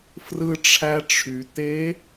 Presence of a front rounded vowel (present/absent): present